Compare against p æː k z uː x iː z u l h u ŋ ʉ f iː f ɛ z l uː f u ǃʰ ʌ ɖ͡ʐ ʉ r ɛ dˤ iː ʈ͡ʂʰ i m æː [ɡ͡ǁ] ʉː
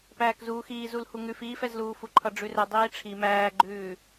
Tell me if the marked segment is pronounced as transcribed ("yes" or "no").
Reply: no